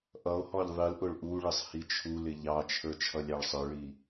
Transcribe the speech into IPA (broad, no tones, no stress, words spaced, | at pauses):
ʔʌo̯hɔʎ ðˤilʔʊɭ ʔuɭɪsˤ hit͡ʃʰulɪ ʎɑt͡ʃʰə˞ t͡ʃʰʌlʲɑɭsˤə˞ɭi